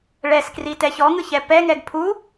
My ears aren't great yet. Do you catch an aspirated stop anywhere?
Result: yes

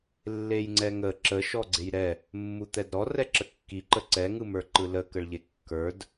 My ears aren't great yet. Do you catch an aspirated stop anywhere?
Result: no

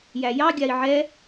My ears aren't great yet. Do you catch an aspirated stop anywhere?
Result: no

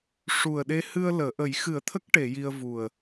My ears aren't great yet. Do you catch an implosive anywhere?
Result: yes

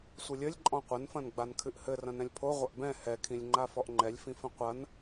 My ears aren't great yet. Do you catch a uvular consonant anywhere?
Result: yes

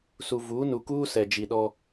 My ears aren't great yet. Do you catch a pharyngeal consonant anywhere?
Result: no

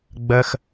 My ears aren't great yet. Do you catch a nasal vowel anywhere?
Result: no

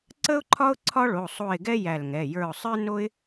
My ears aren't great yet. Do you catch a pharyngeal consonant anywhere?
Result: no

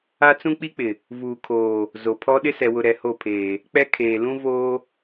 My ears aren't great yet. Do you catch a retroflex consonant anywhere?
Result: no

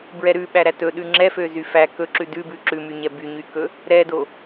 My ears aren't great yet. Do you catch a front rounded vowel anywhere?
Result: yes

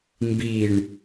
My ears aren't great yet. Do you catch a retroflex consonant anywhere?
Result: yes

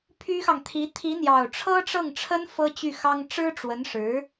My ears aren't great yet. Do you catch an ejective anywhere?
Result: no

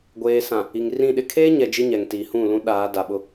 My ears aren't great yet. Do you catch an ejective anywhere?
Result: no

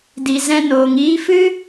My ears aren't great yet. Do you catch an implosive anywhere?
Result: no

